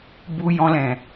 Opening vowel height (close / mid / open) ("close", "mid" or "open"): close